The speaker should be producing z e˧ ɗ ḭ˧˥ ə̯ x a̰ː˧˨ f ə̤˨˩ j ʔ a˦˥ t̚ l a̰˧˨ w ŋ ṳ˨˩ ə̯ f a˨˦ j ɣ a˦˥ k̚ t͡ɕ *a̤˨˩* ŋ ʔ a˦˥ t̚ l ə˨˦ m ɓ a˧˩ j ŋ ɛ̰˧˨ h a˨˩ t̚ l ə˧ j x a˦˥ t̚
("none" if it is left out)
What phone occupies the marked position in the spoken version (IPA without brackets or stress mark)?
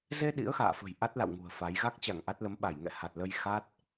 a˧˩